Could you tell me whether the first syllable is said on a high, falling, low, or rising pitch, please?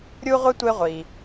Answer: high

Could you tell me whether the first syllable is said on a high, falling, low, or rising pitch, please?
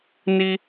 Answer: high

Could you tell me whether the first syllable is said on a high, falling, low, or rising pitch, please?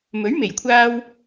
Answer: rising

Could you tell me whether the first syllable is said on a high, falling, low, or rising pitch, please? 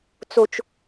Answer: low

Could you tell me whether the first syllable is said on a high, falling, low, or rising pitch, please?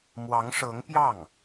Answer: rising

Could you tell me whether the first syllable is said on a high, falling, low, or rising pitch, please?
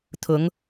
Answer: rising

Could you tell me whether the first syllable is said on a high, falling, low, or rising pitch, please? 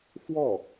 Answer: falling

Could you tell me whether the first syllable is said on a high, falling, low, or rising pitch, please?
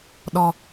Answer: low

